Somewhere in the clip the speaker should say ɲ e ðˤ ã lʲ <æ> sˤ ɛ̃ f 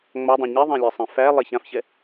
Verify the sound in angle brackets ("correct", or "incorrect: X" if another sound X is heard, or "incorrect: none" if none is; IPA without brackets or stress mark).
correct